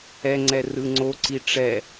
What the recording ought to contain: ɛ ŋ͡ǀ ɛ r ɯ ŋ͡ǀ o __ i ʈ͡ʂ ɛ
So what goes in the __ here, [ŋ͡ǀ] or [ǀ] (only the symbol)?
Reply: ǀ